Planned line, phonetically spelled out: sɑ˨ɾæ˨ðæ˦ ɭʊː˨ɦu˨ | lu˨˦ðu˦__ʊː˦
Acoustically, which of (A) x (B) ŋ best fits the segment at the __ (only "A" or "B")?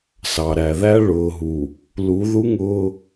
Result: B